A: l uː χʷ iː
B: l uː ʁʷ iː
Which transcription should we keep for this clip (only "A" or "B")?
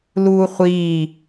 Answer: A